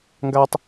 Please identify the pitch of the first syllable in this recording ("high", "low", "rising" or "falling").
high